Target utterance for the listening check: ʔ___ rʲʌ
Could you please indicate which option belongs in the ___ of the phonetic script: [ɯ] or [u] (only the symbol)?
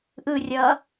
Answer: ɯ